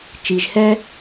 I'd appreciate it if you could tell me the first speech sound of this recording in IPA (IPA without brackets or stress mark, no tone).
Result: t͡ʃ